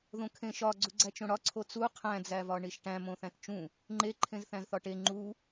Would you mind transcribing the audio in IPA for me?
ð õ kʰ ẽ ʃ ɒ ɡ͡ǀ u ɡ͡ǀ æ t͡ʃ õ ɽ ɒ ǀʰ o t͡s u qʰ æ̃ d͡z æ v ɒ ɳ i ʃ ʈ æ̃ m õ θ æ̃ t t͡ʃ ũ | ŋ͡ǃ e ǃʰ ẽ z θ æ̃ z θ ɒ ʈ e ŋ͡ǃ u

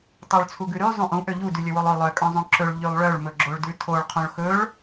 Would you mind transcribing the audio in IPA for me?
tˤ o ɭ t͡sʰ u ɡ ʉ ɾ y zˤ ũ ʔ ũ ʔ ø ʎ u d y lʲ ɵ w o lˠ ø lˠ œ kʼ œ̃ zˤ õ ǁ ɵ ɭ ʎ y lˠ ɭ œ ɭ m ɵ ɡ͡ǁ o ɭ d ʉ tʰ o ɭ qʰ õ ɭ x ɵ ɭ

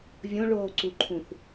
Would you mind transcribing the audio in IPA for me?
vʲ õ ɭ oː ǀ u ǃʰ ũ θ

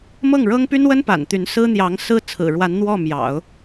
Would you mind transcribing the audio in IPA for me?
m ɤ˥˩ ŋ ɻ ɤ˥ ŋ p y˥ n w ə˥ n p a̰˨˩ n t̪ y˧˥ n s ɹ̩˥ n̪ j ɑ˧˥ ŋ s ɹ̩˥ t͡sʰ ɹ̩˨˩ ɻ w a˧˥ n n̪ w ɔ˥˩ m j ɑ̰˨˩˦ ʊ̯

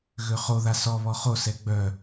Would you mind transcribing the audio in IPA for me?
ɣ ø χ o ð a s ɔ β ɔ χ o s ɛ ɡ͡b œ

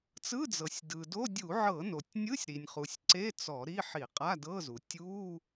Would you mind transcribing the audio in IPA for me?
t͡s ɯ˧˥˧ d͡z ɤ˩ sʲ d ɯ˩ d o˧˥˧ dʲ u˧˩˧ ʕ ɤ˧˩˧ n o˩ tʲ nʲ ɯ˧˥˧ sʲ ɾ i˩ nʲ χ u˩ sʲ ǀ e˧˥˧ t͡s ɔ˧˩˧ ɾ i˧˥˧ ħ i˧˩˧ qʼ a˧˥˧ d ɤ˧˥˧ z u˩ tʲ u˧˥˧

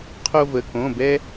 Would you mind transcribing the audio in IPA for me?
qʰ o˦ v ə˩˧˩ k õ˩˧˩ b ɛ˦

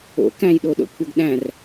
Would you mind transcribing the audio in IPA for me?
o̰ k æ̃ j ɗ o ɗ o̰ kʷʰ ə ɡ ɗ æ̃ r

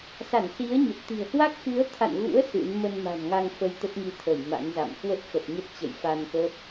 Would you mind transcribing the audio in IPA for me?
s a˧˩ n s i˨˦ ə̯ ɲ ə˨˩ p̚ t̪ i̤˨˩ ə̯ h w a˦˥ k̚ x ɨ˨˦ ə̯ t̪ʰ a̰˧˨ n ɣ ṵ˧˥ ə̯ s ɨ̰˧˥ n m ə˧ n m a̤˨˩ n ŋ a˧ ŋ f ə˨˦ j t̪ ə˦˥ t̚ ŋ i˧ t̪ʰ əː˧˩ j m a̰˧˥ n z a̰˧˨ m k w ə˦˥ t̚ x ə˨˩ t̚ ɲ ə˦˥ t̚ t͡ɕ ə̰˧˨ j f a˧ n k ə˦˥ p̚

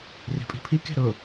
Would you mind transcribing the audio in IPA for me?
r e̤ pʼ i̤ pʰ i k e̤ ɾ ʊ

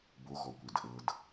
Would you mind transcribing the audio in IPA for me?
b o ɣ ɔ kʷ e d ʔ ɤ d

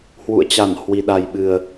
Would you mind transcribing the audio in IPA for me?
h w ṵ˧˨ ə̯ t͡ɕ a˧˩ n h w i˨˩ ɗ a˨˩ j ɓ ɨ˨˩ ə̯

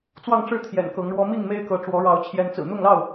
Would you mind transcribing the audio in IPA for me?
t͡s w ɑ˥˨ ŋ ʈ͡ʂ ɻ̩˥˨ t̪ʰ j ɛ̰˨˩ n k ɤ˨˦ ŋ ɻ w ɔ˦ m i˥˨ ŋ m e˦ ɪ̯ k ɤ˨˦ ʈ͡ʂ w ɔ˨˦ ɻ ɑ˨˦ ʊ̯ t͡ɕʰ j ɛ˨˦ n t͡s ɹ̩˨˩ n̪ ʊ˥˨ ŋ l ɑ˥˨ ʊ̯

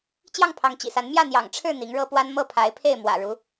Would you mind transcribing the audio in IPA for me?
t͡ɕ j ɑ˥˩ ŋ pʰ ɑ˧˥ ŋ t͡ɕ ḭ˨˩ s a˧˥ n m j ä˥˩ n̪ j ɑ̰˨˩ ŋ ʈ͡ʂʰ ɻ̩˥˩ n̪ i˧˥ ŋ ɻ ɤ˥ p w a˥ n m ɤ˥˩ pʰ a˧˥ ɪ̯ pʰ e˥˩ ɪ̯ m w ä̰˨˩ ɻ u˧˥

